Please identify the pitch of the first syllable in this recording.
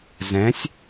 rising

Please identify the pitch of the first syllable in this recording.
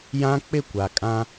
high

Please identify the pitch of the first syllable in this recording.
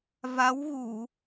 rising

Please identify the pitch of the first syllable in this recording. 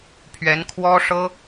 rising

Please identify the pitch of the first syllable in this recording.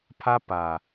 high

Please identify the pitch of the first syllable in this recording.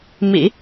low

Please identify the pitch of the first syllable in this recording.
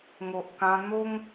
low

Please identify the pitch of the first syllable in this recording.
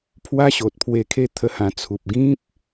high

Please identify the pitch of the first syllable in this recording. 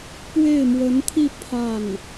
falling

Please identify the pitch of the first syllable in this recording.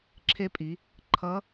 rising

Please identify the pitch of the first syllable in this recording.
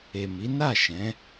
low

